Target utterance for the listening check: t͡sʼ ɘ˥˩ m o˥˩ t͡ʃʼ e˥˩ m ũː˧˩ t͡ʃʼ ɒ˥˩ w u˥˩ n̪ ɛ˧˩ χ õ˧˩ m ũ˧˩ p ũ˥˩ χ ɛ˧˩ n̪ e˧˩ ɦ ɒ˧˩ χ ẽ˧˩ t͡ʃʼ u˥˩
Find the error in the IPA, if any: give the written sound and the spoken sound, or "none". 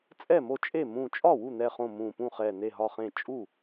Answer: ɘ˥˩ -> ɛ˥˩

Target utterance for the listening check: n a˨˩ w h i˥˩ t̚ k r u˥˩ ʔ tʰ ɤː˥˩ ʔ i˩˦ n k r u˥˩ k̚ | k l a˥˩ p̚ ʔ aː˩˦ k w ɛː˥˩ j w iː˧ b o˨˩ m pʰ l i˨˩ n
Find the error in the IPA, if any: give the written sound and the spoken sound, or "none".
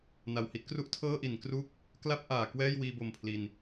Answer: none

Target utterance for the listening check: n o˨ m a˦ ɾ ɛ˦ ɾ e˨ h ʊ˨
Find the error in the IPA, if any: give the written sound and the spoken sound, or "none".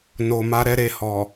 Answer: ʊ˨ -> ɔ˨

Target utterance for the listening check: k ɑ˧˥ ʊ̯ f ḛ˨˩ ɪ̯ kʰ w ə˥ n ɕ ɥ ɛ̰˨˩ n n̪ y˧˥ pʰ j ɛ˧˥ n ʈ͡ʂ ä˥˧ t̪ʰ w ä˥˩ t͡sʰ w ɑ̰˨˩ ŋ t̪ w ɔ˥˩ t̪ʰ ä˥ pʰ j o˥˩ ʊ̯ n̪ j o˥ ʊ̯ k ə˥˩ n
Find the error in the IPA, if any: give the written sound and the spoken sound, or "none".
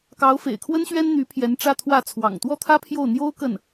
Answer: ɛ̰˨˩ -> ɛ˥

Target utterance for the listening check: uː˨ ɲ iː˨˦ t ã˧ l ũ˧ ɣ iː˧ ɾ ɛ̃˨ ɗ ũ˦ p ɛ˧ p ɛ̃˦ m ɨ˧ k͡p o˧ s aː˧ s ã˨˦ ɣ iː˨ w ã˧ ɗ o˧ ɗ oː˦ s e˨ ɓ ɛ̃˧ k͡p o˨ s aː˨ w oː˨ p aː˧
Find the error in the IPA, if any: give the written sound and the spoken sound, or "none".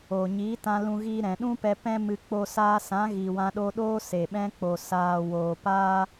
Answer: uː˨ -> oː˨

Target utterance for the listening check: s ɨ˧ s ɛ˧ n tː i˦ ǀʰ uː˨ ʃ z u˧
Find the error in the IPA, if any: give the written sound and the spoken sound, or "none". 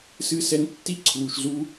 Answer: none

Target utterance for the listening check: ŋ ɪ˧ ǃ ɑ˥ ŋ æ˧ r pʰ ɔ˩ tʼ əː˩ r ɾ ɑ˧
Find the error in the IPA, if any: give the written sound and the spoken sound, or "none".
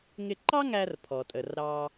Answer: none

